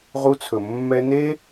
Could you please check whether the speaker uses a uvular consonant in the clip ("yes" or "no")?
yes